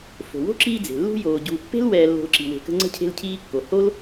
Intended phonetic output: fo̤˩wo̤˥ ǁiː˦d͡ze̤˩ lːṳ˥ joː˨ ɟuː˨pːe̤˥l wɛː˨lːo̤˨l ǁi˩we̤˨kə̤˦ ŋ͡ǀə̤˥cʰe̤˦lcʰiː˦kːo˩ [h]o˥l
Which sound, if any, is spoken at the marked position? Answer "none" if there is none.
h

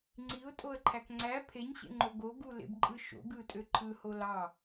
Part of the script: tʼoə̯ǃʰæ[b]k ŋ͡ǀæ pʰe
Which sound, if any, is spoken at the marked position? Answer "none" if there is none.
none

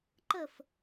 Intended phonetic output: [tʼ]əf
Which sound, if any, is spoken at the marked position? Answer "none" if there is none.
ǃ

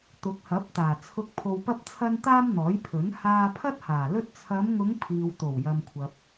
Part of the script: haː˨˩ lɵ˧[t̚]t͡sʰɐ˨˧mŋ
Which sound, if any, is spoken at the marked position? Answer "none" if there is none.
t̚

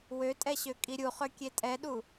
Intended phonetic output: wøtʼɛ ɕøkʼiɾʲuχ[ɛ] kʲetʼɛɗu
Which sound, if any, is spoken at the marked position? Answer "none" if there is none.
ø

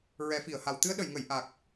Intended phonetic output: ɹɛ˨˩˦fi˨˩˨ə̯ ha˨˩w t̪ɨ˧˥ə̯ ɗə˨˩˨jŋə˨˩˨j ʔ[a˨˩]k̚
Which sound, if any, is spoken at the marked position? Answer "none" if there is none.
a˨˩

